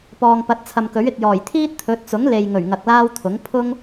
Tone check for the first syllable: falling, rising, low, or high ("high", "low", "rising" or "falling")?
low